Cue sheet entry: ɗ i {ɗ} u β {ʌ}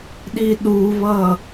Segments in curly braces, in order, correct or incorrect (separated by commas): correct, correct